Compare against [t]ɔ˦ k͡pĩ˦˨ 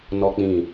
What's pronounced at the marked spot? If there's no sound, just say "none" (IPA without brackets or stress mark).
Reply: n